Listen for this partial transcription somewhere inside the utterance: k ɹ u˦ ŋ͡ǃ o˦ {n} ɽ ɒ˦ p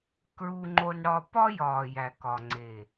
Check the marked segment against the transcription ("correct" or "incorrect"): correct